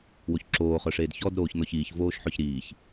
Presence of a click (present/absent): present